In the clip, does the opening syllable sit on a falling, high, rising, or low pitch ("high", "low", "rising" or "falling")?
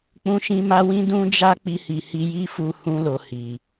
high